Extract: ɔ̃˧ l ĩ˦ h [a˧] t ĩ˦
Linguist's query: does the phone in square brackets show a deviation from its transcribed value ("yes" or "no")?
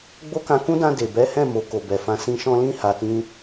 no